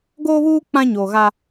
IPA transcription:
ɡ oː˦ β uː˦ k͡p ã˦ ɲ oː˨ ɣ a˦

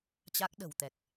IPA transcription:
t͡ɕ a˦˥ k̚ ɗ ə̤˨˩ w t̪ ɛ˨˩ k̚

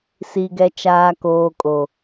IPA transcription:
s i˨ ɡ ɛ˨ t͡ʃ aː˨ k oː˨ kʼ o˨

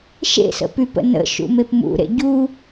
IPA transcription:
ʃ ḛ s ə̰ p y p ə̰ n ə̰ ʃ ṵ m e p m ṵ ɾ ḛ ɟ u

